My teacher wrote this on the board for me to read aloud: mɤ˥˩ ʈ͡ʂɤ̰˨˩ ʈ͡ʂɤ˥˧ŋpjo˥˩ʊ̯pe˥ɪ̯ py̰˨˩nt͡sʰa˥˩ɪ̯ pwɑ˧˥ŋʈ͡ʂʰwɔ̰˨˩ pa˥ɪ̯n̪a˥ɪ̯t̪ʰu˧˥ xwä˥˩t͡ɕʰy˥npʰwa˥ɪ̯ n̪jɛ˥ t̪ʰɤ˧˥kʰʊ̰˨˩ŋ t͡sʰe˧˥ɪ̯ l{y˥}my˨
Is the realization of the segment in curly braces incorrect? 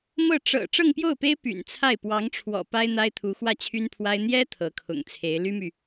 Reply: no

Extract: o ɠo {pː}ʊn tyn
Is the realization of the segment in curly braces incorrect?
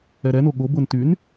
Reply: yes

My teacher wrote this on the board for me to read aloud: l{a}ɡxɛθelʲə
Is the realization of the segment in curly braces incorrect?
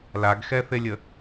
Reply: no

